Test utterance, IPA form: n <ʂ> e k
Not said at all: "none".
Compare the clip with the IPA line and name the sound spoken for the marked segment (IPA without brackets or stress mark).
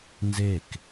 z